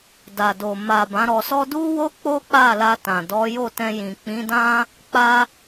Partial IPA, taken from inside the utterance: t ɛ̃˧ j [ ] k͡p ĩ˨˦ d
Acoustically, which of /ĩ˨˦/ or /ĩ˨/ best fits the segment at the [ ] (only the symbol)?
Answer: ĩ˨